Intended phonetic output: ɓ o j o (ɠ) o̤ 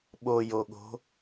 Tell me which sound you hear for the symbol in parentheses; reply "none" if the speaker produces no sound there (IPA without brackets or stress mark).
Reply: ɠ